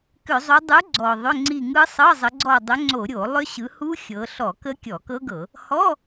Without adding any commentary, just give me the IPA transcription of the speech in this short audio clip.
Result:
k ʏ˧˩˧ zˤ u˨˦ dˤ u˨˦ ɡ͡ǀ ɔ˨˩ ðˤ ʏ˧˥˧ ŋ͡ǀ i˦˨ ŋ ɯ˦˥ sˤ ɤ˧˥˧ zˤ ə˨˦ ɡ͡ǀ ɔ˦˨ dˤ ʏ˨˦ ŋ͡ǀ o˧˩˧ ɾʲ o˧˩˧ lˠ ʏ˦˥ ɕ ɯ˨˦ h u˦˥ xʲ ɤ˨˦ ɬ ɔ˧˩˧ k ə˦˥ kʲ ɔ˧˩˧ k ɤ˦˥ ɡ ɤ˧˩˧ | h ɔ˧˥˧

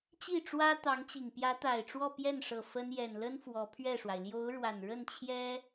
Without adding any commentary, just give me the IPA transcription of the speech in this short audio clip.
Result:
t͡ɕ i˥˩ ʈ͡ʂ w ä˥ t̪ ɑ˧˥ ŋ t͡ɕ i˨˩ ŋ p j ä˧˥ t̪ a˨˩ ɪ̯ ʈ͡ʂ w ɔ˥˧ p j ɛ˥˩ n ʂ ɤ˨˩ f ə˥ n j ɛ˨˩ n l ə˥ n f w ɔ˧˥ pʰ ɥ ɛ˥˩ ʂ w a˩ ɪ̯ l j o˧˥ ʊ̯ ɻ w a˨˩ n ɻ ə˥˩ n t͡ɕʰ j ɛ˥

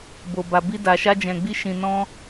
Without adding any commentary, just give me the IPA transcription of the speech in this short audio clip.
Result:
b o˨ b a˨ b i˧ d a˨ ʃ a˧ d͡ʒ ɛ̃˨ ɡ͡b i˧ ʃ ĩ˨ n ɔ̃˧

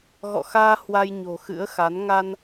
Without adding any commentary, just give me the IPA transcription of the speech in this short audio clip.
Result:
ɣ ɔ̰˧˨ x aː˧ h w a˧ j ɲ o̤˨˩ x ɨ̰˧˥ ə̯ x a˨˦ n ŋ a˧ n

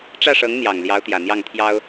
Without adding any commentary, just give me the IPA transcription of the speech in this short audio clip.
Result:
ʈ͡ʂ ä˥˩ ʂ ɤ˧˥ ŋ n̪ j ɑ˨˩ ŋ l j ɑ˧˥ ʊ̯ t̪ j ä˨˩ n̪ j ɑ˥˩ ŋ t̪ʰ j ɑ˥ ʊ̯

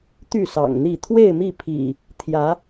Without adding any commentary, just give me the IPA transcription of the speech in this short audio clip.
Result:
t̪ y˥˨ s ɑ̰˨˩ ŋ n̪ i˥˨ t̪ʰ w e˥˨ ɪ̯ m i˥˨ pʰ ḭ˨˩ | t̪ʰ j ä˨˦

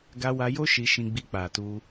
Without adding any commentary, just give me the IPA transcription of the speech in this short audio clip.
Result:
ɡ a˧ w a˧ j o˦ ʃ i˧ ʃ ĩ˧ ɡ͡b i˧ k͡p a˨ t u˧

